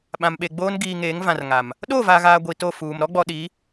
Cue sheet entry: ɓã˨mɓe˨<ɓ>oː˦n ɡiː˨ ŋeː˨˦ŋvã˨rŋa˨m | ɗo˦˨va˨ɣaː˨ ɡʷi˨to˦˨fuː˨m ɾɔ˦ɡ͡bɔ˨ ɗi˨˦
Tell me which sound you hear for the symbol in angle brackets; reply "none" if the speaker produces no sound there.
ɡ͡b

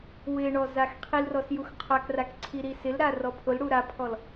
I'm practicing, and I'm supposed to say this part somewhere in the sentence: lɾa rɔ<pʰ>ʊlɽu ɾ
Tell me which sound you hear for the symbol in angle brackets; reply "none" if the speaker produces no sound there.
pʰ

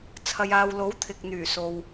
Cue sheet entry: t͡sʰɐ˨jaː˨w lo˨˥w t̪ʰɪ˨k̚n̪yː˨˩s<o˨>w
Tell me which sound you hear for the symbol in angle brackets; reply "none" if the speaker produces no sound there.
o˨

